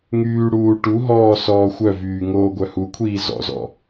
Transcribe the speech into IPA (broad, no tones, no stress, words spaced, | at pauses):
ŋyː ɽuː ʈuɦɔː sɔːxʷœvyː ŋoːɡʷœhukʷʰiː zɔ̰zɔ̰